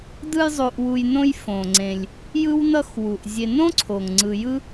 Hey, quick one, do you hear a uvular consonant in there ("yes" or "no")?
no